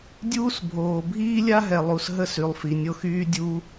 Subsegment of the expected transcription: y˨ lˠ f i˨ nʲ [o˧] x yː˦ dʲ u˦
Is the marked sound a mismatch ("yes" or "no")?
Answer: no